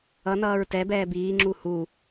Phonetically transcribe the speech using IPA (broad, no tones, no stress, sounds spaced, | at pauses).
ʌ n ʌː ɹ t ɛ b ɛː b iː ŋ͡ǁ u h u